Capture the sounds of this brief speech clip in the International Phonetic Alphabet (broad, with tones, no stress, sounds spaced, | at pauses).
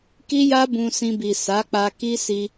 k i˦ j a˦ b ũ˧ s ĩ˧ b i˨ s a˨˦ k͡p a˧ k i˦ s i˧